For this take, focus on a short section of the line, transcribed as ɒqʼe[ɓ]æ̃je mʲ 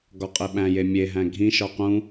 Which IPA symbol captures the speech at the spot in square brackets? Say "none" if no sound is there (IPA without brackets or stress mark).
ɓ